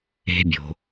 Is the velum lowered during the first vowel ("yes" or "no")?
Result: no